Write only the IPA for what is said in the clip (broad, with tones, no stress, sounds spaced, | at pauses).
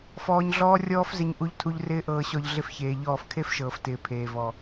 f ɔː˧ ɲ ɮ ɔː˦ rʲ ɔː˦ f z ɪ˧ ɲ ʔ u˧ ʎ tʰ u˧ ʎ r ɪː˦ ʔ ɤː˧ ɕ ɔ˧ ʎ ɮ ɪ˦ f ç eː˧ ʎ ɔː˦˨ f kʰ e˦ f ʃ ɤː˨ f t ɪː˨ pʰ eː˨ v ɔ˨